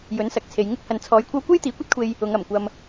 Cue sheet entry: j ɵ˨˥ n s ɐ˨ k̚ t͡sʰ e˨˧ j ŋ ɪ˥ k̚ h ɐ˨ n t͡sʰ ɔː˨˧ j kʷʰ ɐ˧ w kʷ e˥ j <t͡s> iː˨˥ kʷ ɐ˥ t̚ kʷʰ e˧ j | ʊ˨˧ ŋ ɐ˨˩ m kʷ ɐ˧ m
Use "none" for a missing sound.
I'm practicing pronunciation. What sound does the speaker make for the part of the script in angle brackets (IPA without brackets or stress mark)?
t̪